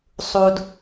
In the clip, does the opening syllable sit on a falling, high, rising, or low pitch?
low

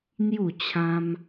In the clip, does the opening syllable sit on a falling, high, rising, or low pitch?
falling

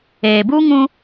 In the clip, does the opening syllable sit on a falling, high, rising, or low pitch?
low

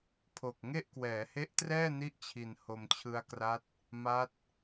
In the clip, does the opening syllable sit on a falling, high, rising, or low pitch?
low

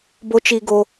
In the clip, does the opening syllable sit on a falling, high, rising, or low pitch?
high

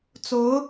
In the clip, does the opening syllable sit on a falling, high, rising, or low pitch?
rising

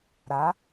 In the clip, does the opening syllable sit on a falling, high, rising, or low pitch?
rising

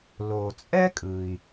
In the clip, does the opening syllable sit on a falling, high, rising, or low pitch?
low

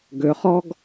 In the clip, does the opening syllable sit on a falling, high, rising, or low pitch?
rising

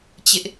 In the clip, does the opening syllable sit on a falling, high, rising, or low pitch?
high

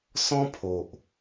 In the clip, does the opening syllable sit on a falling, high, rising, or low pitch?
high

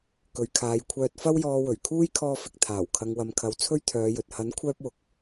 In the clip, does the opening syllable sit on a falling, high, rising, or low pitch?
low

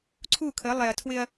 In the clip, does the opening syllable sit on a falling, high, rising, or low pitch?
falling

